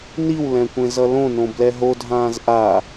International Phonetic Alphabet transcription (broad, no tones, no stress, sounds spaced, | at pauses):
n i w l ɛ̃ kʷ ẽ z ʌ l õ n õ b l ɛ ɦ o dʱ ãː z ʔ a